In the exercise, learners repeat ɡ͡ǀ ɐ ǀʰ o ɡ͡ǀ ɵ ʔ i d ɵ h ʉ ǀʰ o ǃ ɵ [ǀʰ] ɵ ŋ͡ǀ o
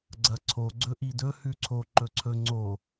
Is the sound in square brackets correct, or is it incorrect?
correct